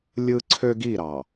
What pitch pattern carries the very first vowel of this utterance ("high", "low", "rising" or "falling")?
high